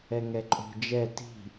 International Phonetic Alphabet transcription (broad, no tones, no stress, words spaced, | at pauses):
ɛŋɛǃʼo̤ d͡ʒɛ ti̤